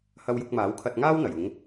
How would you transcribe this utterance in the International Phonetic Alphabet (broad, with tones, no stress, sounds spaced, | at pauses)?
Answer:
h ɐ˧ w j ʊ˧ k̚ m aː˨˥ w kʰ ɐ˧ t̚ ŋ aː˥ w n̪ ɐ˨˩ j ʊ˨˧ ŋ